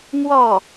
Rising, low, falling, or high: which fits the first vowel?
falling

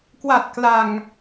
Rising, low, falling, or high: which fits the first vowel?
low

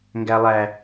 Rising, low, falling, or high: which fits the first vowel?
low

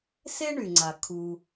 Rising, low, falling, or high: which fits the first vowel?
high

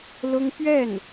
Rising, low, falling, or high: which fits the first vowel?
high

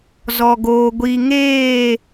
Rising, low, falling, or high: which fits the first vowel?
low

